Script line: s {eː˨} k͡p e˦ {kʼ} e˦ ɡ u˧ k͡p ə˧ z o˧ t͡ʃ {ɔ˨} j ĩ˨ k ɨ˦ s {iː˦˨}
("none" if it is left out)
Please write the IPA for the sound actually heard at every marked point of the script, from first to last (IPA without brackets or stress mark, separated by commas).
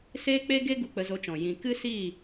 eː˦, ɡ, ɔ̃˨, iː˦˨